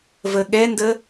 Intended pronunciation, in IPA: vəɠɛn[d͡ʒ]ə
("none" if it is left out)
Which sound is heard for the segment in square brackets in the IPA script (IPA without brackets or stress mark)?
d